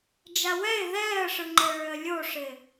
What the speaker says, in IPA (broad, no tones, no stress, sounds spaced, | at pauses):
d͡ʒ a w ɛ ɪ̯ ð ɛː ə̯ ʂ ɯ ŋ͡ǃ e ɭ ø ə̯ lʲ o ʂ ɪ